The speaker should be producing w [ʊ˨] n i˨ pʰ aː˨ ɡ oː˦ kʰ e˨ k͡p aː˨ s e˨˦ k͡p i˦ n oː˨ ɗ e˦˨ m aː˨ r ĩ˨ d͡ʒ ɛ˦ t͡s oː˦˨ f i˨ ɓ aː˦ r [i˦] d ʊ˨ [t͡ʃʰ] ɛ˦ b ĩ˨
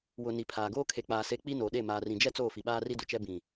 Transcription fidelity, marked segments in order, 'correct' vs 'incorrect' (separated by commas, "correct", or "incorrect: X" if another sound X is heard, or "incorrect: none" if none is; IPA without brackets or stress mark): correct, correct, incorrect: t͡ʃ